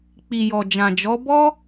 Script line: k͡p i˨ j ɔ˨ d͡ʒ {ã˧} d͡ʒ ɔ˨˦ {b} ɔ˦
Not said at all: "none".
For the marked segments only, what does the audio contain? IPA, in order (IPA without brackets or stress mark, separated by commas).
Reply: ã˨, b